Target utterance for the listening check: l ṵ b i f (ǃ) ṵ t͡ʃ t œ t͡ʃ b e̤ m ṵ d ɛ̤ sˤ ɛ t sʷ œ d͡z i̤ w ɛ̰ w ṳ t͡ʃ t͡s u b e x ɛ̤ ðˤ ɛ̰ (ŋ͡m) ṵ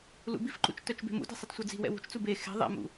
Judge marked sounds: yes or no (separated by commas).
yes, no